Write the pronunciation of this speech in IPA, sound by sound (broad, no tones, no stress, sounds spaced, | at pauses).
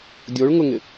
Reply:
dʲ o ɭ ŋ ʊ ŋ ɪ